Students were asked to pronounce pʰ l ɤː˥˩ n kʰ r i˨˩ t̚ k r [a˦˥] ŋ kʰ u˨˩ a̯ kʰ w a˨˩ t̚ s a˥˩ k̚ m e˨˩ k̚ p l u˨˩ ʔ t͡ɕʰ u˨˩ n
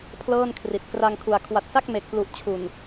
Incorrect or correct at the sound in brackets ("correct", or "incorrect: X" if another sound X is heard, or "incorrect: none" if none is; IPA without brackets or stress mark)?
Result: incorrect: a˧